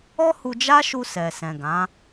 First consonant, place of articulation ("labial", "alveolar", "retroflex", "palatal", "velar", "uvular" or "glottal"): glottal